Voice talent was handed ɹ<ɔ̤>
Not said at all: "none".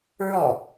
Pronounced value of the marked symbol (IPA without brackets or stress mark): ɔ